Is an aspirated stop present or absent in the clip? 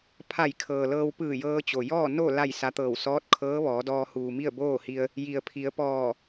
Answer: present